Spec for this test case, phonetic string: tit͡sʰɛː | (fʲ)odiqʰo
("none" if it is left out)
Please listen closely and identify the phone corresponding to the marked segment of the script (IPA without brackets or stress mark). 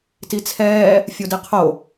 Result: fʲ